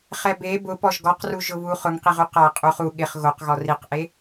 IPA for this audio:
χ ɛ b e b ʊ p ɔ ʒ ɡ ɔ q r u ʒ ʊ β u χ ʊ ŋ q i ʁ u q a qʼ u χ u ɠ ɪ χ ɣ o q ɣ ɔ r i q ʔ e

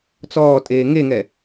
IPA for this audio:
t͡s ɔː tʼ eː ŋ e ŋ ɛ

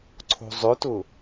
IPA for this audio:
ǀʰ o̤ zˤ ʏ t ʊ

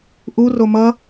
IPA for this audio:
ʔ u r o m ʌ

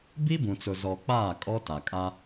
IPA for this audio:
b i˦ b ũ˨ t͡s ʊ˨ z ɔ˨ k͡p aː˦˨ kʼ ɔ˦ t a˨ kʼ a˦

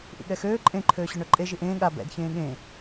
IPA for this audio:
ʔ ḭ ɠ ɛ x øː ǃʼ ẽ ǃʰ øː ɕ ø ɳ œ ǃʼ e ʒ i ʔ ẽː ɠ a b ɛ̰ d ç ẽː ɠ ẽ

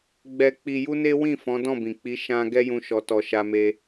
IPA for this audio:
ɡ͡b ɛ˧ k͡p i˧ j u˦ n e˦ w ĩ˦˨ f ɔ̃˨˦ d ɔ̃˦˨ b ĩ˨ k͡p i˨˦ ʃ ã˦ ɡ ɛ˦ j ũ˧ ʃ ɔ˨ t ɔ˨ ʃ a˧ m e˧

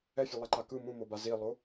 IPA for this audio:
ɛ fʲ o lˠ a ǃ a k ɯ m ũ m o b a z i lˠ o

